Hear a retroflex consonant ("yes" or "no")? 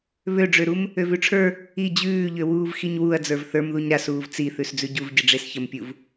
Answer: yes